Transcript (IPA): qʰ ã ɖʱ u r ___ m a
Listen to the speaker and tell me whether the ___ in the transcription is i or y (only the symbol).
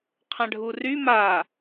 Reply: y